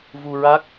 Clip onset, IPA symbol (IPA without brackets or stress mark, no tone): v